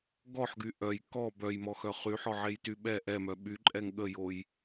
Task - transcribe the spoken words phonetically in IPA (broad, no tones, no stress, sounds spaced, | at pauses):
ɡ ɔ ħ ɡ y ʔ œ j k ɔ b œ j m ɔ x œ χ y ħ ɔ ʕ e j t y ɓ ɛ ʔ ɛ m œ ɓ y ǃʼ ɛ ŋ ɠ ə j o j